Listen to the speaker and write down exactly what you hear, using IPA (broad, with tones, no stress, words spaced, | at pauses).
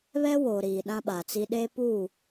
βɛ˦woː˨ ɾiː˨ɗã˦ɓa˨t͡si˦ ɗe˦pu˦˨